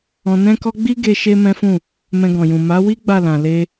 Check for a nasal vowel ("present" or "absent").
present